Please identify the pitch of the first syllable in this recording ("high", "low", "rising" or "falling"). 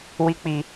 high